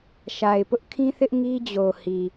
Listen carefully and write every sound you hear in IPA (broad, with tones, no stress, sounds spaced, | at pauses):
ʃ a˨ ɪ̯ p ʊ˦ ʔ kʰ ĩ˦ θ ɪ˦ ʔ ŋ i˦ d͡ʑ o˨ h i˨